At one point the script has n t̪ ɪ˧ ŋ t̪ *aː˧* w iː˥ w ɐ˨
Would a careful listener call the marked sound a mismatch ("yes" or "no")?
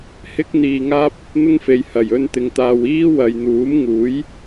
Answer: no